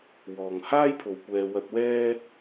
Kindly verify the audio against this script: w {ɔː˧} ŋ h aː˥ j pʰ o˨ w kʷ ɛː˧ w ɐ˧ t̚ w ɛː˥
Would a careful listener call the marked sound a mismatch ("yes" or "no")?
yes